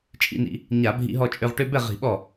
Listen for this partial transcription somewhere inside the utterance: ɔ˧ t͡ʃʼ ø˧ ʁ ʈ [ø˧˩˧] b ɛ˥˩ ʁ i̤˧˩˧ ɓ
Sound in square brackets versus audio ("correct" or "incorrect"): incorrect